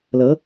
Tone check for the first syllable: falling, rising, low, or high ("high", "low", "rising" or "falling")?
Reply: rising